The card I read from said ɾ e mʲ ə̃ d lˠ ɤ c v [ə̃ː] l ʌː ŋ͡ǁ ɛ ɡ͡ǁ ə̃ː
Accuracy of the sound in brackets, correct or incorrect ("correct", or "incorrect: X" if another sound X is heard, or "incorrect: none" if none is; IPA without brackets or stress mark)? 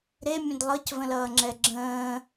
incorrect: ə̃